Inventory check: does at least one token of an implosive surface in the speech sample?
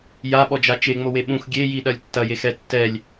yes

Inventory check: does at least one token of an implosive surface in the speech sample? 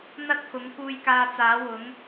no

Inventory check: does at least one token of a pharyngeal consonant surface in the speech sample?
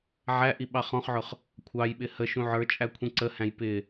yes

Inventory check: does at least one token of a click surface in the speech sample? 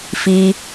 no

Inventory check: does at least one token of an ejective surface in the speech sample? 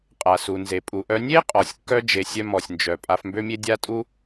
yes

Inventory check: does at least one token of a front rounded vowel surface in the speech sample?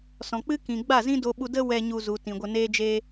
no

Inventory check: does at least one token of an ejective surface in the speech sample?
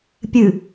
no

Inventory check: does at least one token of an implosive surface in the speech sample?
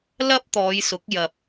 no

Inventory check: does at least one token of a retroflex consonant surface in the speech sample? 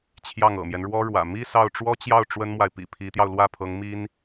yes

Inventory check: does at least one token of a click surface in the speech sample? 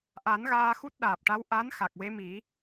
no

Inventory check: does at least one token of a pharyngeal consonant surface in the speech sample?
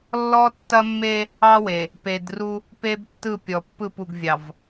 no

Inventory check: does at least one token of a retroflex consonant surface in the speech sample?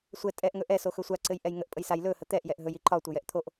no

